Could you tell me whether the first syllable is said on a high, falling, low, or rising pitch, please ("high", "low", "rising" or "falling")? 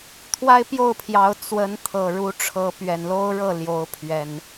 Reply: high